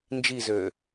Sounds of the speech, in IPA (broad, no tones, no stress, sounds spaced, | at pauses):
n d͡ʒ i z øː